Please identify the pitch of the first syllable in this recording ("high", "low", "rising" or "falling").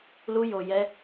high